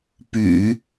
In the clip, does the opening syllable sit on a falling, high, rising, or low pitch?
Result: low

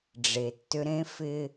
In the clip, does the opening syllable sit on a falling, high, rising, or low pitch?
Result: low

